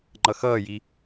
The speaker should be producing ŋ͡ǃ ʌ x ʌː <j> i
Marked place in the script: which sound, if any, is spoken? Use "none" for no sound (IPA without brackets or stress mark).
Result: j